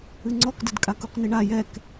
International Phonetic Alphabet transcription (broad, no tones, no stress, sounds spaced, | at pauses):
ɨ ŋ͡ǀ ɔ k d ɘ d kʼ a k u q n i ɳ a j ɛ k